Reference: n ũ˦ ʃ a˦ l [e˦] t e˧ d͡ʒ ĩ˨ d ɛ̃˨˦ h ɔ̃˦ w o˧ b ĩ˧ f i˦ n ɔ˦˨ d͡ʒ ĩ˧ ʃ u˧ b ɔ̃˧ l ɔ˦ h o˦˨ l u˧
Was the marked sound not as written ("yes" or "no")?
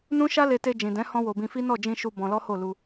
yes